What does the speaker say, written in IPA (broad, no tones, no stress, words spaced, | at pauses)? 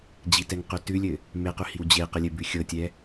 d͡ʑitɛŋqʉ tʉlʲɘ | meqʉhiw d͡ʑeqɘlʲɘbʉ xʲɤtʲɛ